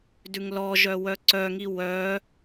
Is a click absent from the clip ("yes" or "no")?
no